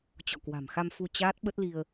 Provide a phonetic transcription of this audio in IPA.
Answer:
t͡ɕɔ̰˧˨kwa̤˨˩mxa˧mfu˧ t͡ɕaː˦˥t̚ɓə˦˥t̚li˧ə̯

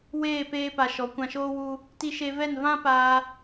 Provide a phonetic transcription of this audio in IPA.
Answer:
weː˦˨peː˧pa˨ ʃɔ˨˦kʷã˧ʃoː˦ wu˧ | ti˧ʃe˧vɛ˦˨n vã˦paː˧

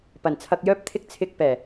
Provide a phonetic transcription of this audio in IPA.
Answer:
pɐ˨˩nt͡sʰɐ˧k̚jœː˥p̚t̪ʰɪ˥k̚ t͡sʰɪ˧k̚pɛː˨˩

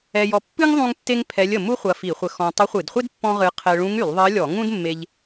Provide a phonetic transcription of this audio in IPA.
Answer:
ɛ˧jɔ˧ pːɨ˥ŋ ðˤũ˥ŋtːe˥ŋpʰɛ˧˥lʲ ə˧ mu˥χʷɐ˧ fi˧˩˧χʷə˧ xɔ̃˧ tˤɐ˧˥χʷɨ˧˩˧dχʷe˥d pːɔ̃˥ʁɨ˧˥ qʰɛ˧ ɭũ˧˥ŋy˧˩˧lˠðˤɜ˧˥lʲɔ˧˩˧ ŋũ˥dmːe˧ʎ

